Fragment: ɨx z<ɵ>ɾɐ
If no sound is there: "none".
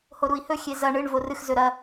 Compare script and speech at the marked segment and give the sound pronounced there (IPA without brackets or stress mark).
ɵ